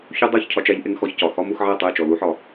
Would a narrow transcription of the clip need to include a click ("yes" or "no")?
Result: no